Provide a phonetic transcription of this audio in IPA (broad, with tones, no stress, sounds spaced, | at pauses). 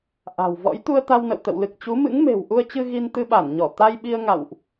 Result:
ʔ a̤˨˩ w v ɔ̰˧˥ j t̪ u˧ ə̯ t̪ a˧ w n ə̰˧˨ w t̪ ə̰˧˨ w l ɨ˨˩ k̚ t͡ɕ u˨˦ m ɨ̰˧˥ ŋ m e̤˨˩ w ʔ u˧ ə̯ t͡ɕ ɨ˧ ɣ i˧ n t̪ ɨ˧ ɓ a˧˩ n ɲ ɔ˧˩ t̪ a˧ j ɓ i˧ ə̯ ŋ a̰˧˨ w ʔ